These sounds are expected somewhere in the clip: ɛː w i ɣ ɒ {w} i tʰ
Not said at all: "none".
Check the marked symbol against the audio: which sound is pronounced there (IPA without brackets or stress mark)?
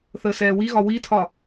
w